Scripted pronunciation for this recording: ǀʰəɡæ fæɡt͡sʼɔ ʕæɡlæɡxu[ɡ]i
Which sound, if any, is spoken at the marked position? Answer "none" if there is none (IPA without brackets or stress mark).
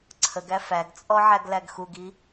ɡ